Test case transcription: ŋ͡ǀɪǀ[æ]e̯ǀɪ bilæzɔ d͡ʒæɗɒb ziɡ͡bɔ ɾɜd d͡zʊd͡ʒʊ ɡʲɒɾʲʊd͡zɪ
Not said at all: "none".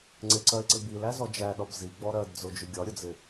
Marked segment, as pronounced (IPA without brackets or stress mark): ɜ